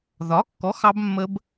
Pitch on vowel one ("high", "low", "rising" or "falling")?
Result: rising